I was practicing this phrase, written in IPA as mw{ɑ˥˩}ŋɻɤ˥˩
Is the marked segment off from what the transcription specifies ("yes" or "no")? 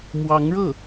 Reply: yes